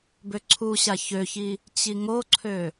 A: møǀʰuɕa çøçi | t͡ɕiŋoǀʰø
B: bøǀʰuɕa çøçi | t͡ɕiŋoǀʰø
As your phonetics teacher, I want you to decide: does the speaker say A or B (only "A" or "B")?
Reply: B